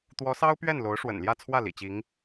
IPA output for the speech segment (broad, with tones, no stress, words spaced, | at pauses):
t̪wɔ˧˥sɑ˥ʊ̯pɥɛ˥˩n lo˧˥ʊ̯ʂwə̰˨˩nljä˥˧t͡sʰwä˥˩ lḭ˨˩t͡ɕi˧˥ŋ